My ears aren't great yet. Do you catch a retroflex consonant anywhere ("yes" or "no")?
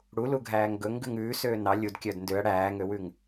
yes